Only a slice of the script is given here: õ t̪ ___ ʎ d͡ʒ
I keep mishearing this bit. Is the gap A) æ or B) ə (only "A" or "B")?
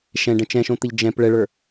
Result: B